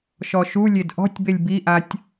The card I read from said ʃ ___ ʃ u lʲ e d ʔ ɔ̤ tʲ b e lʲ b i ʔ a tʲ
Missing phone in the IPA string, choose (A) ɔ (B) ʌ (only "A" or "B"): A